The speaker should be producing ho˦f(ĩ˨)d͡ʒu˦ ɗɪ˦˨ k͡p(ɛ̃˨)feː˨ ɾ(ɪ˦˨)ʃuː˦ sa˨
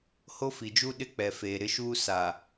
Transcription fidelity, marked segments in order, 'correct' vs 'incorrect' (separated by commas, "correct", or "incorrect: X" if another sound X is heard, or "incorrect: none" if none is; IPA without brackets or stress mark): incorrect: i˨, incorrect: ɛ˨, correct